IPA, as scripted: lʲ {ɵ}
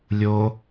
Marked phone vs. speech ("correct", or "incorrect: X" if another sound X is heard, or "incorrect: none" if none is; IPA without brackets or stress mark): incorrect: o